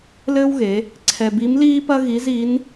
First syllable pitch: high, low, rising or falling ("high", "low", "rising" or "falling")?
high